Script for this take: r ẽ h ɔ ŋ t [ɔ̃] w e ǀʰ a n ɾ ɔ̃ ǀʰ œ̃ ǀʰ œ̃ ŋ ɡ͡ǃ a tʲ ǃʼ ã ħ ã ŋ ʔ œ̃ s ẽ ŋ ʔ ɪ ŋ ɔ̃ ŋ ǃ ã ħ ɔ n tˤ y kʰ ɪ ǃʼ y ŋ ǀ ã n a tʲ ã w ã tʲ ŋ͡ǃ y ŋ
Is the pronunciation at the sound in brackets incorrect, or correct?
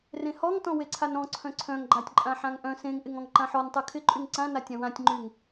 correct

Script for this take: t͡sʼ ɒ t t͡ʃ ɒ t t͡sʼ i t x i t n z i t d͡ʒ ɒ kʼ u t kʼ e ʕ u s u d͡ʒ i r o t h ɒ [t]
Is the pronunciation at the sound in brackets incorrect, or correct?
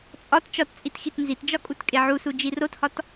correct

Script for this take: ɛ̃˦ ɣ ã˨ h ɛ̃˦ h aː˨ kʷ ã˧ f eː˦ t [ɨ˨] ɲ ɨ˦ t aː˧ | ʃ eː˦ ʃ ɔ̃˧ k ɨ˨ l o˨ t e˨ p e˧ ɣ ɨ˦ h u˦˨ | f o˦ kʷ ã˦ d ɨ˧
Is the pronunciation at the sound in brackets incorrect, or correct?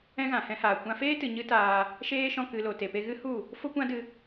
correct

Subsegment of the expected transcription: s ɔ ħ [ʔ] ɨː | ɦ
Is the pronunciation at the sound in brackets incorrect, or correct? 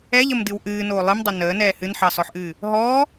correct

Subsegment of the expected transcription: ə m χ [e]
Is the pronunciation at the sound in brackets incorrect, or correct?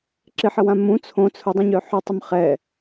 incorrect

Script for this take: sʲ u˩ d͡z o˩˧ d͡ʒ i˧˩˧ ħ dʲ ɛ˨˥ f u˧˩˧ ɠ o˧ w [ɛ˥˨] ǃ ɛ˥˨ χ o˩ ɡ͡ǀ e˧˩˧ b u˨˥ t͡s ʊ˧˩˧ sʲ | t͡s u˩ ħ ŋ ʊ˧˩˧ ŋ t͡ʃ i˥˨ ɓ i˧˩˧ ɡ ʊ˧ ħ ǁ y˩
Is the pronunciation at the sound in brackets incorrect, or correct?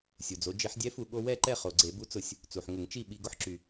correct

